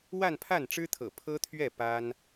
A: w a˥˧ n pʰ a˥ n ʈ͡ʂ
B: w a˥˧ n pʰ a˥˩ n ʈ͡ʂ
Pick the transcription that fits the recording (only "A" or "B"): B